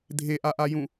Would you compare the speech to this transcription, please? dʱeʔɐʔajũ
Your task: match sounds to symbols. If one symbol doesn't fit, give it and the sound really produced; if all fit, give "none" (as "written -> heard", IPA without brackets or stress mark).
ɐ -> a